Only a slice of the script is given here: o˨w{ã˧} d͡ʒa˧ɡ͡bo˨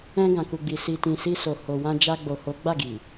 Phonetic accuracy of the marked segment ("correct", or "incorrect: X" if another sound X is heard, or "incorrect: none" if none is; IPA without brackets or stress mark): correct